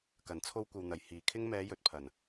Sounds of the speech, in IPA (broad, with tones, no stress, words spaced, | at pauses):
kɐ˨˩nt͡sʰo˧wkʷɐ˨w n̪ɐ˨˩jhiː˨˩kʰɪ˥ŋ mɛː˨˧jɵ˨t̚pʰɐ˨˩n